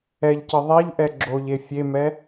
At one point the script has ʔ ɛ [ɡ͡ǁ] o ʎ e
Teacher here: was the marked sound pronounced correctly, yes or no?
yes